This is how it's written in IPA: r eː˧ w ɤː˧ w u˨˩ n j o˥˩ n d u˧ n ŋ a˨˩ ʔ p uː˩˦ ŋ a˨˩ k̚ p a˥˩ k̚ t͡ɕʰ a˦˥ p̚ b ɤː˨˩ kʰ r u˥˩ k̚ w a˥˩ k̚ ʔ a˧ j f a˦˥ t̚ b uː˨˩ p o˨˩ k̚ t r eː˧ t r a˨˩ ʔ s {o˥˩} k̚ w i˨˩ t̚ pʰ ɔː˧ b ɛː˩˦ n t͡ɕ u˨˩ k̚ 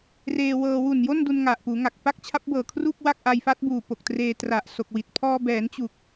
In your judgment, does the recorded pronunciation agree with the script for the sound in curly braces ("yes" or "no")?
no